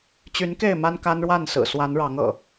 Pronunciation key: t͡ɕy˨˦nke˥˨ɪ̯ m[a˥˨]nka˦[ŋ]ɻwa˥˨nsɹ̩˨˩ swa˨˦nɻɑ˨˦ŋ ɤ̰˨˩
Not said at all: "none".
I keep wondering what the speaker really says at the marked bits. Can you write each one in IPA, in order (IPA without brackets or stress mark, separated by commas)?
a˦, n